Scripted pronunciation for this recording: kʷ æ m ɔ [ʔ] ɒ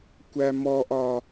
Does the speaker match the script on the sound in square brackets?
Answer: yes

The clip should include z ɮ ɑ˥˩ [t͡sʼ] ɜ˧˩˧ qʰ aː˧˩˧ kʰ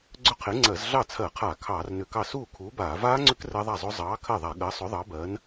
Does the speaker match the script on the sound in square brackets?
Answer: no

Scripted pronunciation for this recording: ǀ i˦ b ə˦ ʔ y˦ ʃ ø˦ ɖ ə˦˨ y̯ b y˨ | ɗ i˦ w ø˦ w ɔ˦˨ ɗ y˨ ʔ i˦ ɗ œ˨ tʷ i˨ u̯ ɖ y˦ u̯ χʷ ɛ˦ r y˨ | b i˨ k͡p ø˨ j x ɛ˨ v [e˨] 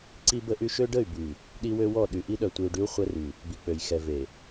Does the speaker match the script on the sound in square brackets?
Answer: yes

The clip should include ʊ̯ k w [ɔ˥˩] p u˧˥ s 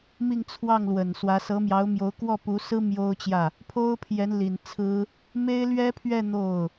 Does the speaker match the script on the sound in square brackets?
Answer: yes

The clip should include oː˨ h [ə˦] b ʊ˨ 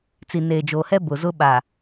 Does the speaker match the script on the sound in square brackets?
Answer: no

